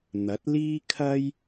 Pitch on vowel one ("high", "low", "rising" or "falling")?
rising